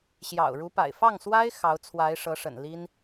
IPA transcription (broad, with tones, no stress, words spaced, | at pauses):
ɕjɑ̰˨˩ʊ̯ɻu˧˥pa̰˨˩ɪ̯ fɑ˥˩ŋswa˥ɪ̯ xɑ˧˥ʊ̯t͡sʰwa˧˥ɪ̯ʂɤ˧˥ʂə̰˨˩n li˥n